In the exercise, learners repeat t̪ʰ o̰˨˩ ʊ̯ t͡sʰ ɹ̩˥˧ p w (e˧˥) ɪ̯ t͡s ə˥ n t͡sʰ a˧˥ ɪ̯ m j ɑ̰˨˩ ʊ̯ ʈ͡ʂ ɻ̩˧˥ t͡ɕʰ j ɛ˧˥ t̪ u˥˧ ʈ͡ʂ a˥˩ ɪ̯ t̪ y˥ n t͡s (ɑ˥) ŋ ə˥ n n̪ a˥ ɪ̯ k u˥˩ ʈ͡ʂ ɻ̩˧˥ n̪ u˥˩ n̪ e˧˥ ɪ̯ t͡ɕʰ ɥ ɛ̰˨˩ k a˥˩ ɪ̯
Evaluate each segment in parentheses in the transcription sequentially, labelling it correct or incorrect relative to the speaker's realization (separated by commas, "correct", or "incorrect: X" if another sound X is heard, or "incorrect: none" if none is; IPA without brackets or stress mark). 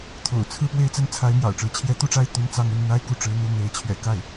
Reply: incorrect: e˥˩, correct